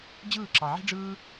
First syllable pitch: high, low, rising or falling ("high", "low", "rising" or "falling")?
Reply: falling